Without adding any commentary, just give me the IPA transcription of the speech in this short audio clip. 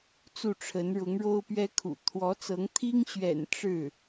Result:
t͡su˥˩ʈ͡ʂʰə˧˥n ɻʊ˧˥ŋɻo˥ʊ̯pɥɛ˥kʰṵ˨˩ t̪ʰwɔ˧˥t͡sɤ˧˥ŋ t̪ʰi˥ŋɕɥɛ̰˨˩n ʈ͡ʂɻ̩˥˩

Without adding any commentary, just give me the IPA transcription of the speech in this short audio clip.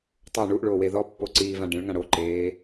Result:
tˤo ɳuʔɭoːwe ðɔpːoǀiːvã ɖẽɭŋã ɽoǃeː

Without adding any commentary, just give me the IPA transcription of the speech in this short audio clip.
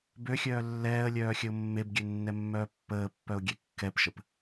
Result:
bøxʲœː lːɛːə̯lʲœː xʲəʊ̯mːebɡʲø nːɛmːœːpːəːpːœʊ̯ ɡʲɛkːɛpʃəp

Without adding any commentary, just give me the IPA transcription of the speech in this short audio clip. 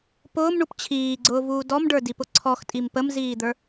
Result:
pʊːmɳup t͡ɕʰiːɡ͡ǀʊːvuː dɔmɖə˞dipʊ ǀʰɔxtʼim pəmziːd̪ə˞

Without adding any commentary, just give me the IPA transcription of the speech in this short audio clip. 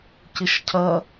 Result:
cɪʃcʰɐ

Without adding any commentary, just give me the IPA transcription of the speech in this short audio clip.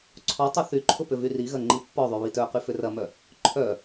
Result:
ǀʰɔtˤɐ θyǃʰʊ pʏvyriɣɐ ŋ͡ǃipːɔðˤy βitœqy fʏrɐmœ | ǃʰœ

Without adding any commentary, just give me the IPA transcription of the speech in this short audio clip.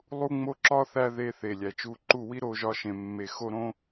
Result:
lˠu˦ŋ͡mo˦ǁɒ˦ θæ˦ ðe˧θe˨ lʲæ˨t͡ʃu˧ǃu˦˨ wi˦ɾo˧ʒɒ˧ ʃẽ˨mːe˨xo˧ɾõ˧

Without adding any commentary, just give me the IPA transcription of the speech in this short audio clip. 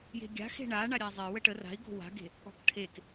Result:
je̤ɡʲa̤xe̤ ɳa ɳaɾʲazˤe wəʈə ra̤i̯ɡo̤ wa̤ɡe̤ | ɔ̤kʈʰek

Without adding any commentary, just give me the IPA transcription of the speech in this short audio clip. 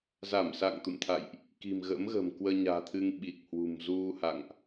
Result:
za˧˩msa̰˧˨ŋ t̪ṵ˧˨mt̪ʰa̰˧˨jʔ | ki̤˨˩mɣə̰˧˥mɣə̤ː˨˩m kwəː˧ɲa̤ː˨˩t̪ʰɨ˧ŋ ɓi˨˩k̚hwṳ˨˩m zu˧ha̰˧˨ŋʔ

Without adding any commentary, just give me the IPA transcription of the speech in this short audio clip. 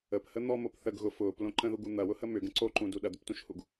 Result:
əphə n̪ɔmop θəɡ ɣʊ fʊːplõ ǃə̃ðuɡu n̪ɐwʊhə mʏɡə̃ ǀoǃũdu ɗɐd̪ʏptũʃhuɡ

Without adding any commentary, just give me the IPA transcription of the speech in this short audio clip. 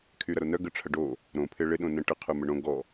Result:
kʰyɾɐɾonœ ɡəʈ͡ʂʰɐɖo | ɾõpʰɪ ɭɪɗõnə̃ ʈəqʰœmə ɳõ ɡɔ

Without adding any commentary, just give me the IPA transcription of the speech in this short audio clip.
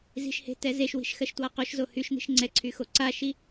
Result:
zi̤ʃhe̤ tɛzeʃwi̤ʃ xɜʃtwaqoʃzo hyʃ n̪i̤ʃŋ͡ǀɛǀʰy xoǀaʃi

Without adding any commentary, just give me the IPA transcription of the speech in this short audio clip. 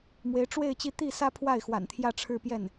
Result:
mwe˧˥ɪ̯ ʈ͡ʂwe˥˧ɪ̯ t͡ɕi˥˧ t̪i˥˩ sä˥ pʰwa˥˩ɪ̯xwa̰˨˩nt̪ʰjä˥˧ ʈ͡ʂʰɻ̩˥˧pjɛ˥˩n

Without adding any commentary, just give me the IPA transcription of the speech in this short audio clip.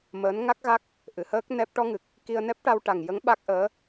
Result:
məː˧˥n ŋa˦˥k̚ɣa˦˥k̚ | ʔɨ˨˩˨həː˦˥k̚ nɛ˦˥p̚ ʈɔ˧ŋɨ˨˩k̚ | ki˧ə̯ nɛ˦˥p̚ʈa˧wʈa˨˩ŋjə˧˥ŋ ɓa˦˥k̚ʔəː˧˥

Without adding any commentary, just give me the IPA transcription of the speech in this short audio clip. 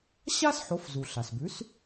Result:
ɕa˥sħo˩˥f zu˩ ɬa˩sbʉ˩˥s

